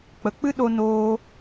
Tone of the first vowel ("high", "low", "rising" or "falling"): low